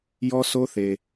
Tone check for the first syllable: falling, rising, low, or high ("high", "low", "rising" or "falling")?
high